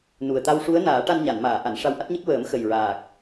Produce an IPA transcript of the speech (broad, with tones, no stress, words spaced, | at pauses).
nu˨˩ə̯ t̪a˧wʂu˧˥ə̯naː˨˩˦ ʈa˧nɲa˨˩˨nmaː˨˩˨ ʔa˨˩˨n ʂa˧wʔa˦˥t̚ɲə˦˥k̚ wəː˨˩˦m xə˨˩jɹaː˨˩k̚